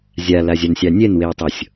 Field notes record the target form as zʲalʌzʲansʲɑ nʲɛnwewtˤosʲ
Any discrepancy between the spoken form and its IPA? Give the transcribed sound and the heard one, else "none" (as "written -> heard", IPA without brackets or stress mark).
ʌ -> a